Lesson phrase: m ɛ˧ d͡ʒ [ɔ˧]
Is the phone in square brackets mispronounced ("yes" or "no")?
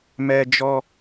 no